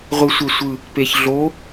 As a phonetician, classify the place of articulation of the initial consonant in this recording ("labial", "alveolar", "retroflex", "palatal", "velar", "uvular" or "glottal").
uvular